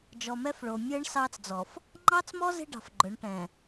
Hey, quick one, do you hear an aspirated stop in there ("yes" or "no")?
no